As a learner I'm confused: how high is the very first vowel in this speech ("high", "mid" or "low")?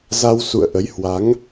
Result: low